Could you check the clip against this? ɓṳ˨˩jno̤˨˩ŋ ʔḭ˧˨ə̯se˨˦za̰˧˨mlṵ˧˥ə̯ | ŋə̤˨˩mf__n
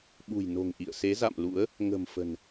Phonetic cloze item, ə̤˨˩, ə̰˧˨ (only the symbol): ə̤˨˩